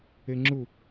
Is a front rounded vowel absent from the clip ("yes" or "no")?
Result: yes